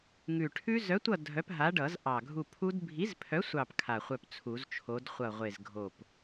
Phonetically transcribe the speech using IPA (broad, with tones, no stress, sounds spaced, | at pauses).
ŋ ʉ˨˩ ʈʰ ʉ˦˥ z œ˨˥ tʷ ʌ˦˨ dʱ œ˨˥ p ɦ a˨˥ ɖ ʌ˨˩˦ z ʔ ɑ˨˩ ɡʱ u˦˨ pʰ u˦˥ d bʱ i˨˥ z pʰ œ˨˥ sʷ ɑ˦˨ p kʰ a˨˩ χʷ œ˦˨ p t͡sʰ u˨˩˦ z t͡ʃʰ o˨˥ d χʷ ʌ˦˨ ʁʷ e˦˨ z ɡʱ o˦˨ p